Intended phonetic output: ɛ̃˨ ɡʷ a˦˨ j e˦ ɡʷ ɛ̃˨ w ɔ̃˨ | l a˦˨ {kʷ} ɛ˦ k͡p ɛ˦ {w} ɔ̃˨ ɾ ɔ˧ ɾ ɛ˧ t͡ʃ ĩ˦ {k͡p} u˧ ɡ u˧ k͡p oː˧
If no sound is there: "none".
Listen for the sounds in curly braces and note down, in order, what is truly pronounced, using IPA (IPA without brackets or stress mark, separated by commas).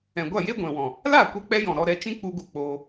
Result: kʷ, j, k͡p